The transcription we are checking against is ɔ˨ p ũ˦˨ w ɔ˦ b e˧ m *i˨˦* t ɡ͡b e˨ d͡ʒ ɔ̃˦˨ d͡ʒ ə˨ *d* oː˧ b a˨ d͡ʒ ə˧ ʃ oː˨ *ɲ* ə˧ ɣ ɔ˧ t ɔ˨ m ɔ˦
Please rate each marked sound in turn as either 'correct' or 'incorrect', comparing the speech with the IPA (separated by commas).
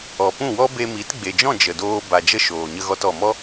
correct, correct, correct